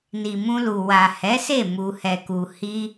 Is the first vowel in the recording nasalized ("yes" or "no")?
no